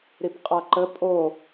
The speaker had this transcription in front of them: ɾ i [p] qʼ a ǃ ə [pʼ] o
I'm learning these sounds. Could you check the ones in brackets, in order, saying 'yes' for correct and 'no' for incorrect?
yes, yes

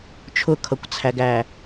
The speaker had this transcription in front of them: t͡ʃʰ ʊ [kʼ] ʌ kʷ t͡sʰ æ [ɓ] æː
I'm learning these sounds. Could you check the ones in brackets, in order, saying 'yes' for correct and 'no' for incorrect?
no, no

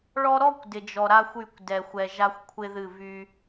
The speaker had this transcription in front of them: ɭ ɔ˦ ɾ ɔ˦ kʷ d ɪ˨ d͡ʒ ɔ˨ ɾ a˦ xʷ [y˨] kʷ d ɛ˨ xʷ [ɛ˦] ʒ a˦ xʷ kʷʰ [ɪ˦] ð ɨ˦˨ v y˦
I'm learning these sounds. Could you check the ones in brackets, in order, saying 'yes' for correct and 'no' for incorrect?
no, no, yes

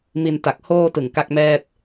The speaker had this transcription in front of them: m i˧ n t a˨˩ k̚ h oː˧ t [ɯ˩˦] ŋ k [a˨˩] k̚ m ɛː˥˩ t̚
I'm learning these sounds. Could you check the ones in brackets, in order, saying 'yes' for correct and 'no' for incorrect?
no, no

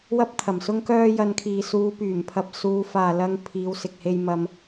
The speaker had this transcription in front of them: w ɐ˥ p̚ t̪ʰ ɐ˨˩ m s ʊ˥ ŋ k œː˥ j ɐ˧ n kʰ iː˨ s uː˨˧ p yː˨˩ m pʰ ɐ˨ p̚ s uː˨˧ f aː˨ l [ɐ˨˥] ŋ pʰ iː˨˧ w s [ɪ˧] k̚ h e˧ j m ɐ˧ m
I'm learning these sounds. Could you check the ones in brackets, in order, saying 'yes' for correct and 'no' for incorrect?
no, no

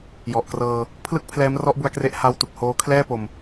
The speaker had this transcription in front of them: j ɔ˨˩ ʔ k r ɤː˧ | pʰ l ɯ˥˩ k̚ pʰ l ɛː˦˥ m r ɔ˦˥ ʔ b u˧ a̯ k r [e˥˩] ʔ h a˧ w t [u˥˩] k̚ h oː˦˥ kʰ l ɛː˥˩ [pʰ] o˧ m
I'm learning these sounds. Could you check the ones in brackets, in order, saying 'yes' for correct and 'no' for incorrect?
no, no, no

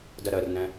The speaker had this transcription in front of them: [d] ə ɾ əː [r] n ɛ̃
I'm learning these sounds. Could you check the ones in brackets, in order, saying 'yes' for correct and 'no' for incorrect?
yes, yes

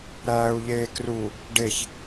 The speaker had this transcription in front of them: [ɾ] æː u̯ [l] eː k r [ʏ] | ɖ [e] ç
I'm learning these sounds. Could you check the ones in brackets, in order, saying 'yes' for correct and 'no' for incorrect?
yes, no, no, yes

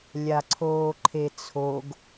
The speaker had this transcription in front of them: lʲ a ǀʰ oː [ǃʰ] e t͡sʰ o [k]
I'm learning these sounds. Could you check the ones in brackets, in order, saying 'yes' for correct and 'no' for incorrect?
yes, no

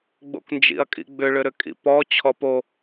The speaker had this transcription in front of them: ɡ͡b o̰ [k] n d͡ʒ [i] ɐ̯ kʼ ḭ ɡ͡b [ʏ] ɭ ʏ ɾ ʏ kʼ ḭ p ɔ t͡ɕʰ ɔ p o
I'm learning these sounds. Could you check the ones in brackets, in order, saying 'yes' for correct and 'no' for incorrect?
yes, no, yes

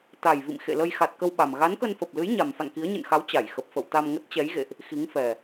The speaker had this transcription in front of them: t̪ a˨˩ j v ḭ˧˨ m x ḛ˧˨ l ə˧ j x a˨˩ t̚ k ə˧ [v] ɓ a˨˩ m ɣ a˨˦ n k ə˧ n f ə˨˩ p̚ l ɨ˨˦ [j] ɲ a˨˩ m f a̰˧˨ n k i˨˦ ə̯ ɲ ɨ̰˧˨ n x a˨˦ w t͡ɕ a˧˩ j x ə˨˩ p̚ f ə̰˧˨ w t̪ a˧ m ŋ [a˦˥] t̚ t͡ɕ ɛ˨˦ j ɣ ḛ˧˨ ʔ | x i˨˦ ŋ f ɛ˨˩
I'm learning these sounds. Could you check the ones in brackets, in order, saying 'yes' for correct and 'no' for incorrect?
no, yes, no

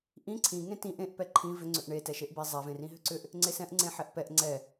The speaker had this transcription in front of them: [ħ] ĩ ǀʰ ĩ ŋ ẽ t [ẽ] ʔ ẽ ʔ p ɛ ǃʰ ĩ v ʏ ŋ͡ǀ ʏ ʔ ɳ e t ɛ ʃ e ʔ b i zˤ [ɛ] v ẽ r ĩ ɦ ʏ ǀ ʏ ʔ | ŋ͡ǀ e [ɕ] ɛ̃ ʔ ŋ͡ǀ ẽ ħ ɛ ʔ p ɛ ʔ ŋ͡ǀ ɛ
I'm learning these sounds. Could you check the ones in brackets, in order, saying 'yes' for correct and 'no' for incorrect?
no, no, yes, no

